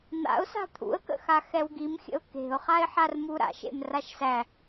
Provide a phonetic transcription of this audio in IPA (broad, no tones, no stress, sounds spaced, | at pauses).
n̪ a̰ ʊ̯ s a̤ t̪ʰ ṵ ə̯ k ə̰ x a x ɛ w ɡ i m xʲ ə̰ ʊ̯ k e̤ ʊ̯ χ a ɪ̯ ħ a r m u ɾ a̰ ʃ ḛ m r a ʃ s æ